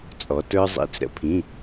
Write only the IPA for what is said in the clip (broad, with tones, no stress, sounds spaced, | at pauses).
t͡sʼ ɔ˩˧ t ə˞˧ zˤ ḭ˩˧˩ t͡s ɾ ə̰˩˧ pʰ ĩ˩˧˩